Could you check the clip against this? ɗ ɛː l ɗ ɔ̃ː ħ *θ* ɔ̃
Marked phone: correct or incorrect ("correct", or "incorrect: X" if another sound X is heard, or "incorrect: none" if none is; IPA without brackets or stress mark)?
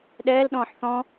correct